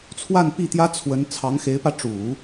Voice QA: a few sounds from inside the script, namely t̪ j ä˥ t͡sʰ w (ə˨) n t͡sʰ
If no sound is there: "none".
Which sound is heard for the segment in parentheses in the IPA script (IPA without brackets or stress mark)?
ə˧˥